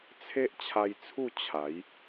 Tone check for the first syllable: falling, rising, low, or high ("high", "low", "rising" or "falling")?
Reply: high